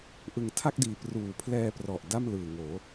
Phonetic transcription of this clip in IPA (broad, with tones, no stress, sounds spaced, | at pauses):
ʔ ɯ˨˩ ŋ tʰ a˥˩ k̚ d iː˨˩ p r uː˨˩ pʰ l ɛː˧ p r ɔ˨˩ ʔ d a˥˩ m l ɯː˨˩ ŋ oː˩˦